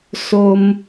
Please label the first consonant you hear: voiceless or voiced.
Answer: voiceless